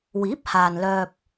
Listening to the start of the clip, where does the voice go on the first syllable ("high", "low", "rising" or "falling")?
rising